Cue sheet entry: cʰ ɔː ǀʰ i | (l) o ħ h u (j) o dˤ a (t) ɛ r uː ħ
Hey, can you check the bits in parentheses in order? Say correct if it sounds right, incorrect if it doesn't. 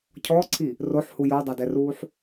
incorrect, correct, incorrect

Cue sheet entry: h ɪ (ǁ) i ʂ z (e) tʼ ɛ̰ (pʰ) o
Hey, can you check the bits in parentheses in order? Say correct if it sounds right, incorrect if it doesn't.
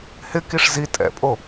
incorrect, incorrect, incorrect

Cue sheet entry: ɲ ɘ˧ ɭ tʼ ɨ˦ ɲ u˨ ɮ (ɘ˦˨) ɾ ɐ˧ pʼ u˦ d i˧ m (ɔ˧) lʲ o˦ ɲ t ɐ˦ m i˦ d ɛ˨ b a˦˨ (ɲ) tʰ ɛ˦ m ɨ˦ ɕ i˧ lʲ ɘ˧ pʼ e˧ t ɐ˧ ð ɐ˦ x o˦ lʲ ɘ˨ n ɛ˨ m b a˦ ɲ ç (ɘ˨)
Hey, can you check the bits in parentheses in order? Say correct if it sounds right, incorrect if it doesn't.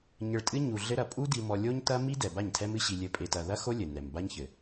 incorrect, correct, correct, correct

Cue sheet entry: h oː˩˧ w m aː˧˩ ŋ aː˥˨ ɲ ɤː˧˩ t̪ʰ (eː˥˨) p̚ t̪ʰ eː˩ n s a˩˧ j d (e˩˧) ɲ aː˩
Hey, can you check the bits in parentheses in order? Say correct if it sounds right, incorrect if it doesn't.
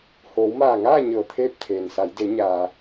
correct, correct

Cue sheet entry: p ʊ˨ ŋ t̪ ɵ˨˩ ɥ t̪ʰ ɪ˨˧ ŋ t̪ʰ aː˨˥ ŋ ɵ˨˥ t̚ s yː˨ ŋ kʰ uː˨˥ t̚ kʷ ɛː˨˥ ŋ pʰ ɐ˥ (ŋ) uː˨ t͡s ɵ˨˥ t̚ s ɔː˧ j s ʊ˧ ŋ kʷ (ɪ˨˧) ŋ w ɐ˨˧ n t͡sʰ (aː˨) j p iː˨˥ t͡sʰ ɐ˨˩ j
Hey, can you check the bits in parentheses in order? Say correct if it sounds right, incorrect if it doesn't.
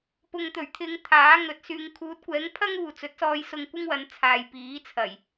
correct, incorrect, correct

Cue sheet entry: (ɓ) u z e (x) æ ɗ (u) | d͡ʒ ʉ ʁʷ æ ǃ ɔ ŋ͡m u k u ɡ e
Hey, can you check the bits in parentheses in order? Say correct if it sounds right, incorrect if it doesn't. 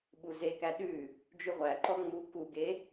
correct, incorrect, incorrect

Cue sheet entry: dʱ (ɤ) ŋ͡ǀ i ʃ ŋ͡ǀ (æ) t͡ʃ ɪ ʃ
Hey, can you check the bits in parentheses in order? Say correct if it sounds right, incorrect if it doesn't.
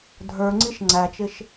incorrect, correct

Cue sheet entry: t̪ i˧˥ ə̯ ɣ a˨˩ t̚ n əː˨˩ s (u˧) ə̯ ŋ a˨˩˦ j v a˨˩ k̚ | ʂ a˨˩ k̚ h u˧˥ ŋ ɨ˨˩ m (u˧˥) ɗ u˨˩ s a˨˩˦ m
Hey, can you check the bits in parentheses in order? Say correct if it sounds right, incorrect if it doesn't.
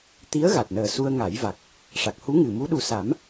correct, correct

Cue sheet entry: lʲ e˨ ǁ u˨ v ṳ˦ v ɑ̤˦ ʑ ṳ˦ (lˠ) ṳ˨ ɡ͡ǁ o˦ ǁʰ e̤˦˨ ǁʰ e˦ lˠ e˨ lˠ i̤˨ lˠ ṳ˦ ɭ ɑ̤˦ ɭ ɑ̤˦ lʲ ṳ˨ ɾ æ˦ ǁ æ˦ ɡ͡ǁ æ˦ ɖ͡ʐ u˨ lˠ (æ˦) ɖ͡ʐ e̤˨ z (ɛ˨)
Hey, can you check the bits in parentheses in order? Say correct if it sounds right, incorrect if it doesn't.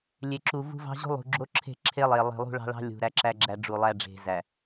correct, correct, incorrect

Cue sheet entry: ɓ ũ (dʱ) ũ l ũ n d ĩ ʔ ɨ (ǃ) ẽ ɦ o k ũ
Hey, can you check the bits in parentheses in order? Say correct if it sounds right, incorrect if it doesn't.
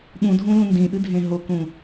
correct, incorrect

